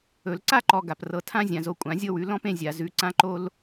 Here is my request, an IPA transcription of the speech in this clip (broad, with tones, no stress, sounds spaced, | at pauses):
ɵ˨˩˦ l ǀ a˦ ǃ ɔ˨ ɡ a˨ p r ɤ˨˦ tʰ ã˦ zʲ ã˨ z o˨˦ kʷʼ ã˨˩˦ zʲ ɤ˦ w ʉ˨˦ l ɔ̃˦ p ẽ˦ zʲ a˨ z ʉ˨˦ ǀ ã˦ ǃ o˦ l